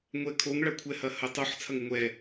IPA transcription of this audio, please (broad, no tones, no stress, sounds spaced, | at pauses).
ŋʷ ɛ kʰ o ŋ ɭ ɐ kʷʰ ɛ h ɐ h ɐ tˤ o ħ t͡sʰ ɐ ŋ ɘ ŋʷ ɛ